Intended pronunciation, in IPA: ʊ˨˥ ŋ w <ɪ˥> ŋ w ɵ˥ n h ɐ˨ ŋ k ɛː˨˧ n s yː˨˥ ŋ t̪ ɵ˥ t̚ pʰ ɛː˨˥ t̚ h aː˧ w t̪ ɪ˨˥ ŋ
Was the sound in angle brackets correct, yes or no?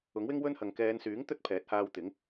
yes